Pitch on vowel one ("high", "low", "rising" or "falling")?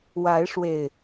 rising